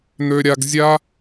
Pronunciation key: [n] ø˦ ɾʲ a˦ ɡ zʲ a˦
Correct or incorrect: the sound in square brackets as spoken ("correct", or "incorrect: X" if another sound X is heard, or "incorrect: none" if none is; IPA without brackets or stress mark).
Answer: correct